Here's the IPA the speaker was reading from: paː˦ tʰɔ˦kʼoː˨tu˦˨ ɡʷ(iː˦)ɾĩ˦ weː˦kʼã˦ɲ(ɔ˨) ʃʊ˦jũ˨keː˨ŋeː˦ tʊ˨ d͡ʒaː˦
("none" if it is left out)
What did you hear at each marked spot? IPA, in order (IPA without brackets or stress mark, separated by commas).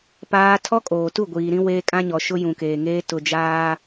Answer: iː˨, ɔ˨